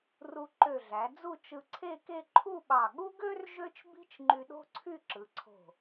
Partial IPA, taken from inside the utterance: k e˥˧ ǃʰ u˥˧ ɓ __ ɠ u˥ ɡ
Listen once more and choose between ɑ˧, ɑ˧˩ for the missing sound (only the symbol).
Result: ɑ˧˩